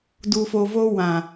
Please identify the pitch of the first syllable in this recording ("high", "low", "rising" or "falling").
low